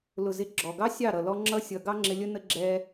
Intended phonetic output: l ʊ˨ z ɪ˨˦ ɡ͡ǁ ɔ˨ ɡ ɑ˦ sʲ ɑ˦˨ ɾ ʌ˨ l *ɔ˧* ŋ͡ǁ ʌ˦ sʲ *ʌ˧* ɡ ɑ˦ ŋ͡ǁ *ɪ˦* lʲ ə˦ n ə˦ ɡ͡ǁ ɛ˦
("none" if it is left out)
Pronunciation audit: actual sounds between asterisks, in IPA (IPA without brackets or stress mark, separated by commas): ɔ˧, ʌ˧, ɪ˧